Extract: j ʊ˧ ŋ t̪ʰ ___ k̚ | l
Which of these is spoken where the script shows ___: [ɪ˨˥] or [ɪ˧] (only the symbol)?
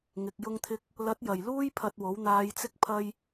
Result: ɪ˧